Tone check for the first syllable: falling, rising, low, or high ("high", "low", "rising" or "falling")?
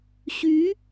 rising